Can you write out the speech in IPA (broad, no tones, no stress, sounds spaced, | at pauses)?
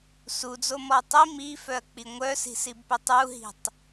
s u d͡z o m ɔ tˤ i m i f œ ɐ̯ k͡p i ŋʷ œ s i̤ s i b p ʏ tˤ u ɦ i̤ tˤ